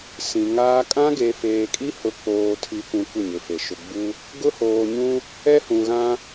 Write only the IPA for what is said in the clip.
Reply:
sĩ˨ŋaː˦ kʼã˦ɡe˨feː˨kʼi˦ hʊ˨˦k͡poː˨tʰi˨kʷũ˨ kʷɪ˦˨ɲɪ˨fe˨ ʃʊ˨ɡ͡bu˦ | ɡʊ˦hoː˨ɲũ˦ | ɛ˦hũ˨ ɣã˦

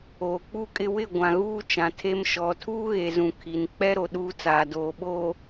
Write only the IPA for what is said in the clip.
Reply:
oː˨k͡pu˦˨kʼɪ˦ wɪ˦˨ ɡʷã˨ɣuː˦ t͡ʃã˨tʰe˦mʃɔ˨˦ tʰuː˦ɣe˨zũ˨ kʰi˨n k͡pɛ˦ɾo˨ ɗuː˦t͡saː˨ doː˨ ɓoː˨

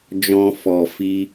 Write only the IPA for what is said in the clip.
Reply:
d͡ʒɔ̃˧fɔ˨ fi˧

